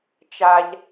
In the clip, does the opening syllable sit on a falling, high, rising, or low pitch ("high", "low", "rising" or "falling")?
low